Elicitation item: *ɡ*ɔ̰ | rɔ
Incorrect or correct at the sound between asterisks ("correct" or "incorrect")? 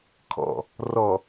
incorrect